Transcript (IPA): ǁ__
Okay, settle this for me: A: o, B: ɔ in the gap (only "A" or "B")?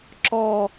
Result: B